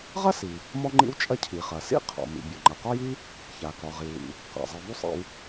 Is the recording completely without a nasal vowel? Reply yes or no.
yes